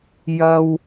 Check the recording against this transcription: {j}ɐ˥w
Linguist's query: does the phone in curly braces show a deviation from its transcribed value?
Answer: no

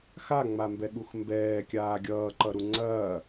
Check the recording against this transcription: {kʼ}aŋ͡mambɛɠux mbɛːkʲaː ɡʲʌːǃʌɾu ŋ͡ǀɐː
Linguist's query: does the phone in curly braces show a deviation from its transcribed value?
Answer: yes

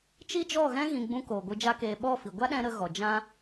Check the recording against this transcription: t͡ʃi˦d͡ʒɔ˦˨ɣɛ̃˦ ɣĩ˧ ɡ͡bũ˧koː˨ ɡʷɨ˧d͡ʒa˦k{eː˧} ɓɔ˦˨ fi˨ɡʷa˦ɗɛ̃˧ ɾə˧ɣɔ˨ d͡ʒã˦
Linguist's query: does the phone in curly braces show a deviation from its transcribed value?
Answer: no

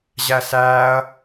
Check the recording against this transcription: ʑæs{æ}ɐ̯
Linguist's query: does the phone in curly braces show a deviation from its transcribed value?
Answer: yes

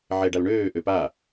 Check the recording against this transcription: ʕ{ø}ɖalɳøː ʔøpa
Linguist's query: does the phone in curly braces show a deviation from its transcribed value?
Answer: yes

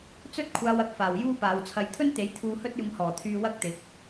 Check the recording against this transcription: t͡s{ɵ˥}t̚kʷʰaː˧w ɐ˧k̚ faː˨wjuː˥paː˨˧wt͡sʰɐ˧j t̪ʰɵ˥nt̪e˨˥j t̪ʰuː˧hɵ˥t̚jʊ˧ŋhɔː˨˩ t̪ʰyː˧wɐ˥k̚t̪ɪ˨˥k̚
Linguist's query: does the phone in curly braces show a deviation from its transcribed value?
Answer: no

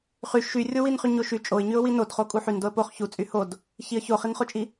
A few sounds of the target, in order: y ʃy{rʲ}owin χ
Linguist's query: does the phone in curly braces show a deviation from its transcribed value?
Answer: no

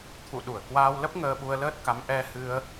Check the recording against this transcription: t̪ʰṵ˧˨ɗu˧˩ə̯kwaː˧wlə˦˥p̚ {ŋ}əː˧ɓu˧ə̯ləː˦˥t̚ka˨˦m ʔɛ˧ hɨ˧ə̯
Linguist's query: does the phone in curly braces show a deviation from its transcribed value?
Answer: no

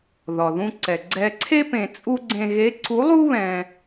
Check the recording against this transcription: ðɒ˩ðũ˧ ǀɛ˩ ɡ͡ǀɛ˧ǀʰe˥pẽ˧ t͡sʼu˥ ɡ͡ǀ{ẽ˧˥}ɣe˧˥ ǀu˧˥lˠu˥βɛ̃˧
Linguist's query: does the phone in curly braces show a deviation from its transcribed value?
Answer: yes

